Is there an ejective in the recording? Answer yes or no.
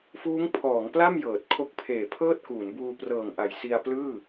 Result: no